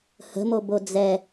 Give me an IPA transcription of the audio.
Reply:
h ə̤ m o b o d͡z ɛ

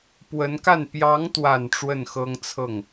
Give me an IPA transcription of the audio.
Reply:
p w ə˧˥ n k a˥˩ n p j ɑ˧˥ ŋ t̪ w a˨˩ n ʈ͡ʂ w ə˥˩ n x ɤ˥ ŋ t͡sʰ ɤ˥˩ ŋ

